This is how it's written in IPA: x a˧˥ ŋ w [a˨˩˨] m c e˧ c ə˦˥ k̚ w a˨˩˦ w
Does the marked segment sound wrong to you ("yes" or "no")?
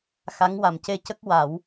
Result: yes